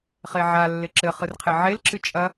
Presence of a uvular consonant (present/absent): present